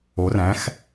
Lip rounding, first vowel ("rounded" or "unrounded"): rounded